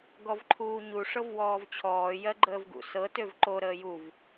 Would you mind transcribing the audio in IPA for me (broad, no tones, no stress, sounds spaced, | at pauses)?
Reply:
ɡ ɔ v ǃʰ uː ɲ u ʂ ɤ v w ɔː v t͡ɕʰ ɔː j ɜ ɡ͡ǃ əː v ɡ ṵ s ɤ t ø v ǃ o ɾ əː j u v